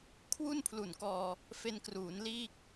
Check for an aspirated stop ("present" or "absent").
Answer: present